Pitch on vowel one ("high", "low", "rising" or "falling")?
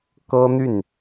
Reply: high